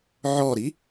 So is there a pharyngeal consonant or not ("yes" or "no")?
yes